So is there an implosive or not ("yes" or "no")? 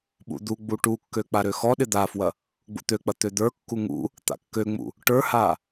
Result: yes